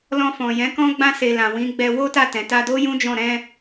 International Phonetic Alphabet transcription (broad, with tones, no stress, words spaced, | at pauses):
lɔ̃˧fɔ̃˨jɛ̃˨˦kɔ̃˦ ɡ͡bã˧se˨ lã˨wĩ˨˦ ɡ͡bɛ˧wo˦ta˦˨ tɛ̃˨ta˧do˦jũ˦ d͡ʒɔ̃˦˨ ɾɛ̃˧